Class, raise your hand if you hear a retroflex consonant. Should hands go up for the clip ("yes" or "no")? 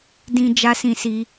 no